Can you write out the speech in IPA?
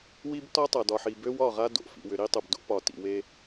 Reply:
w i˦ b t ɒ˦ tˤ a˨ d ɒ˨ ħ i˨ b ø˦ w ɒ˦˨ ʁ a˦ d o̰˨ f ḭ˨ w ʏ˨ ɾ i˦ tˤ o˨ b d o̰˦ p ɒ˨ t ḭ˨ w e˦

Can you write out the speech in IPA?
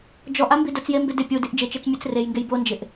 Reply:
d͡ʒ ɔ ʔ a m b i d ʊ t͡s j e m b ɪ d ɪ pʲ u d i ʔ d͡ʒ ɪ t͡ʃ e t͡s mʲ e t͡s r e j ŋ ɡ e j b o n d͡ʒ ɪ ʔ

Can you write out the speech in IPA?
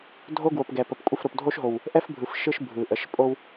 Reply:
dʱ o˦ ɡ w o˨ p ɡ ɛ˨ p ə˨ p kʷʼ ə˦˨ f ɾ o˨ p dʱ o˦ ʃ ɦ o˨ w | ʔ ɛ˦ f bʱ ɯ˨ f ʃ ɯ˦ ʃ bʱ ɯ˨ ʔ ə˨˦ ʃ pʼ o˦ w

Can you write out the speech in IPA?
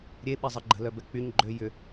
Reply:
ɾʲ e ɓ ɛ zˤ ə ɡ͡ǃ ə̤ l œ b ɛ k͡p y ɲ ɡ͡ǃ ø j ʏ

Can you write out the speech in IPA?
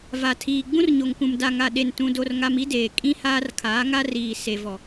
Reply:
v a˨ tʰ iː˨ ɡ͡b ũ˦ r ɲ o˨ ŋ k ũ˨ m d a˨ ŋ a˨ ɗ e˨ n t ũ˦ d o˦ r ŋ a˦ m i˦ d eː˨ kʼ ĩ˦ h aː˦ r kʰ aː˨˦ ŋ a˦ r iː˨ s e˨ v ɔ˨

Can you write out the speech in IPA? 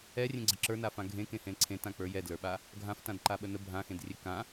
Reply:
ɛ rʲ ẽ ɡ͡ǀ ə ǁ ə˞ n a f ã ɡʱ ẽ k ẽ h ẽ l ǀʰ ẽ t ã k͡p ə˞ j ɛ d l ə˞ ɓ a | ɡʱ ã f t ã d ǃ a ɓ ə n ə bʱ ã x ẽ d rʲ e k ã

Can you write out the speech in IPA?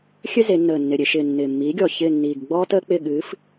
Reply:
xʲ ø˥ z e˩˧ nː əː˨˩ nː ɪ˨˩ ɾʲ e˩˧ ʃ ɪː˨˩ nː ɪː˨˩ mː iː˨˥ ɡʲ ɔ˨˩ ç ɪː˦˨ nː iː˨˩ ɡ ɡ͡b ɔː˥ t əː˥ k͡p ɪ˦˨ ɠ ɨː˨˥ f

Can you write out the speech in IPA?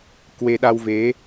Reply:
k w e˧ ɗ a˧ w v e˨˦

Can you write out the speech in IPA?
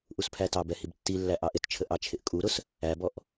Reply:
ʔ u s pʰ æ t ɑ b ɛ h i b tː i lː æ ʔ ɑ ʔ ɪ t t͡ʃʰ ə ʔ ɑ t͡ʃʰ ɪ ʔ kʼ u ɾ ʊ s | æ b ɔ ʔ

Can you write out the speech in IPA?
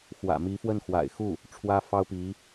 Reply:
x w ä̰˨˩ m i˧˥ f w ə˥˩ n x w a̰˨˩ ɪ̯ x u˥˩ | ʈ͡ʂʰ w ä˥ f ɑ˥ ʊ̯ p i˧˥

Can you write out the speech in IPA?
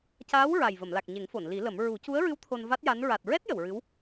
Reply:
c aː˧˥ w ɹ a˨˩ j v ə˨˩˨ m l a˨˩ k̚ ɲ e˨˩˦ ŋ f o˨˩˨ n l i˨˩˦ l ə˨˩˦ m ɹ u˨˩˦ c u˧˥ ə̯ ɹ ɨ˧˥ w t̪ʰ o˧ n v a˦˥ t̚ j a˧˥ n ɹ a˨˩ t̚ ɹ ɛ˦˥ t̚ j ə˨˩˨ w ɹ ɨ˧˥ w

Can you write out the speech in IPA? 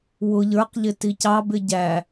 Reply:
w ʊ ʎ ə˞ q ʎ ɪ t i c ɑ b ɪ ɟ æ

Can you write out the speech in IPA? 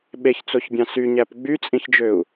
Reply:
ɓ e ç t͡s o ç bʲ ɑ̃ s y ɲ æ p ɡ͡b y t͡sʼ ĩ ç d͡ʒ ø u̯

